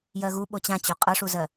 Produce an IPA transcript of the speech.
j ɜ ɣ u ɓ o t͡ɕ ã t͡ɕ o qʼ ɤ ʂ u z ɜ

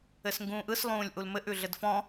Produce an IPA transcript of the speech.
ɘ s ŋ ɡ ũː ʔ ɯ s lˠ ũː lʲ ʔ u l m ɘ ʔ ʉ ɮ ɘ d f ɔ̃

